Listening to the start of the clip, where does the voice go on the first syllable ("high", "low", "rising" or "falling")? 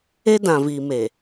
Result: high